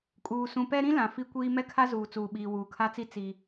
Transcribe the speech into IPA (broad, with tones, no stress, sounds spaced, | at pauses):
kʼ uː˨ s ũ˨ p ɛ˦ ɾ ĩ˦ l ã˨ f i˦ kʷ iː˦ m ɛ˦ kʰ a˦ z uː˨ t͡s uː˨ ɓ iː˨ w uː˨ kʰ a˦ t͡s i˦ t͡s i˦